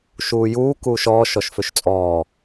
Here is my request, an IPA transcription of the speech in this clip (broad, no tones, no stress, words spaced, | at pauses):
ʃuːjuː kuːʃɔːʃ ɔʃføʃt͡sʼɔː